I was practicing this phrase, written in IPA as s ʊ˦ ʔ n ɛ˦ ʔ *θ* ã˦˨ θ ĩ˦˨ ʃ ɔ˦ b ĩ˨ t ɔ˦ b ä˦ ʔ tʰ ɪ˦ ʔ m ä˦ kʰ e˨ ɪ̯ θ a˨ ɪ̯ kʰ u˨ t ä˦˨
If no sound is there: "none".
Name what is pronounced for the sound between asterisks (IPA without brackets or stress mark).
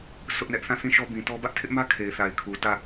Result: θ